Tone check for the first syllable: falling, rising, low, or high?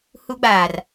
high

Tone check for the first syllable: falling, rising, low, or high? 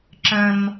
high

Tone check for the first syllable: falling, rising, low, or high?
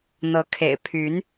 rising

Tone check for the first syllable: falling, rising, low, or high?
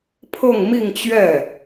falling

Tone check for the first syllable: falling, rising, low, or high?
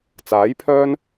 rising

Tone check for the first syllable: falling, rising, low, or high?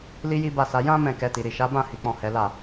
high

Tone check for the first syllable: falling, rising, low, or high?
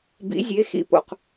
rising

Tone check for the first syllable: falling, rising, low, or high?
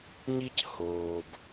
high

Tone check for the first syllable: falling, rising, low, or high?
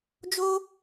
high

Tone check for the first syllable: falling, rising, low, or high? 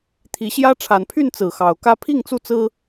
rising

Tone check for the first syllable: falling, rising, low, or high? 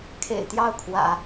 low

